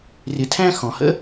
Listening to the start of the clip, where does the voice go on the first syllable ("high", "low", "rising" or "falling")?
low